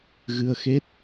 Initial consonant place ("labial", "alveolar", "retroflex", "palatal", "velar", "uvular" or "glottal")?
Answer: velar